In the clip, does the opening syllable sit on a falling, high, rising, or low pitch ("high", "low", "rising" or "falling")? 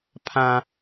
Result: high